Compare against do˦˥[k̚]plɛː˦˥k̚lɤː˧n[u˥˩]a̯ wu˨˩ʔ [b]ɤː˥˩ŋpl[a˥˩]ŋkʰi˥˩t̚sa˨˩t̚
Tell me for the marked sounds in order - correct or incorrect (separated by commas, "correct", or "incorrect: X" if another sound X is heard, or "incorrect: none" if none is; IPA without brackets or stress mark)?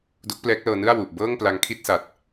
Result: correct, incorrect: ɯ˥˩, correct, incorrect: a˧